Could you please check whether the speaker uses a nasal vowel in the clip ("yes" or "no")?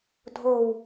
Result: no